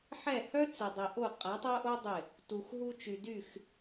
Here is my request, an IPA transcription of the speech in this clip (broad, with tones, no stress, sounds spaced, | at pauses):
ħ ɛ˦˨ h œ˦ t͡s ɪ˨ dˤ i˨ ʔ o˦˨ qʼ a˨˦ tˤ o˦ ʔ o˦ dˤ ɪ˦˨ | t u˨ x ɦ u˧ t͡ʃ y˨ d y˦˨ x